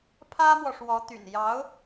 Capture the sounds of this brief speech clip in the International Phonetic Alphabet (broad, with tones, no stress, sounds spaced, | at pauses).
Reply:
pʰ ä˥ m w ɔ˨ ʂ w ɔ˧˥ t̪ y̰˨˩ n j ɑ˧˥ ʊ̯